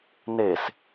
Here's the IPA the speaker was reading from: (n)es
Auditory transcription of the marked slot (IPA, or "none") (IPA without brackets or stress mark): n